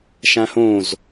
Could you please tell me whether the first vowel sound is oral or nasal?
nasal